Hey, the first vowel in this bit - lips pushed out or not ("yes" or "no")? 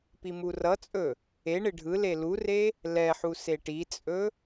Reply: no